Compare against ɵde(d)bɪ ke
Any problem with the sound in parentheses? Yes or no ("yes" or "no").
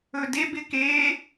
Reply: yes